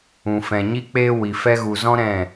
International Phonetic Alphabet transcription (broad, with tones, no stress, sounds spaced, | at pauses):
ũ˨ f ɛ̃˨ ɲ i˦ k͡p e˦ w i˨ f ɛ˦ ɣ u˨ z ɔ̃˦ ɾ ɛ̃˦˨